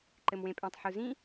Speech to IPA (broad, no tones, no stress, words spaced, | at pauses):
ǃɘmwẽpʼẽtˤ ħuzĩ